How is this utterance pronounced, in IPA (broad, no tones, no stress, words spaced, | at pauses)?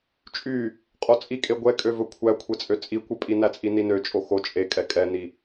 t͡ʃʼy | qʼot͡sʼikʼe ɡʷɛkʼøvɵ kʷʰækʷʰet͡sʼø t͡sʼikʷœpʼi næt͡sʼininø t͡ʃʼoxo t͡ʃʼekʼɛ kʼɛni